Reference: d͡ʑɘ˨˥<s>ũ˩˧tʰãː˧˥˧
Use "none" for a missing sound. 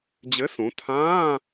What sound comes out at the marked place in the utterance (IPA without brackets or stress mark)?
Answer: s